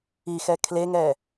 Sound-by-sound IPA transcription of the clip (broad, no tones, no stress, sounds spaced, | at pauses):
i x ɛ kʰ l e ŋ ɛ